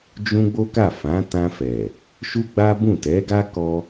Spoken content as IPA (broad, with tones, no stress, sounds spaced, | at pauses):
d͡ʒ ũ˧ ɡ͡b o˦ k a˦˨ f ã˨˦ t ã˧ f ɛ˨ | ʃ u˦ ɡ͡b a˦ b ũ˦˨ t ɛ˨˦ ɡ a˦ k ɔ˦